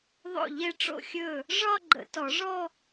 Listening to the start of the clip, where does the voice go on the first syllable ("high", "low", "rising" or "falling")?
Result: falling